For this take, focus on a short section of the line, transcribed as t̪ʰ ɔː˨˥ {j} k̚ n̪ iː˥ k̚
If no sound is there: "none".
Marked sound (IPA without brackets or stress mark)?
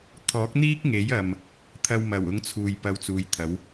none